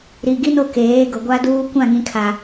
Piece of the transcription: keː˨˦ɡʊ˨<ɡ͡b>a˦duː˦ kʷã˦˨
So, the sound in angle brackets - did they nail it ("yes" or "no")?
no